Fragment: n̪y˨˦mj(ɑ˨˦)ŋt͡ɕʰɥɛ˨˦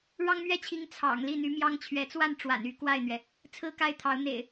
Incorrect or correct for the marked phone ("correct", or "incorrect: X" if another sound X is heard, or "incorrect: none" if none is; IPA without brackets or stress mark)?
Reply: incorrect: ɑ˦